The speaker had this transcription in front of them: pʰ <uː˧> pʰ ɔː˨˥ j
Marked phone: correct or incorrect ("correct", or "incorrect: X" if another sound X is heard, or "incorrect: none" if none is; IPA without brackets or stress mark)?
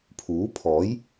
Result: incorrect: uː˨˥